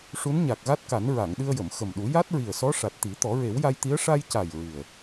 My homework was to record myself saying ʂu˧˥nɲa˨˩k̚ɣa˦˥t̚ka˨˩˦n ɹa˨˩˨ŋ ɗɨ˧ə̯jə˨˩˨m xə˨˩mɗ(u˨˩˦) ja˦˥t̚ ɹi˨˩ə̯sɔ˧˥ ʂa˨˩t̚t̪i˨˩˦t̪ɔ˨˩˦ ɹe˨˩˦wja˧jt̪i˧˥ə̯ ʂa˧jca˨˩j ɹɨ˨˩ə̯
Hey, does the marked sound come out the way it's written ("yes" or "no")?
yes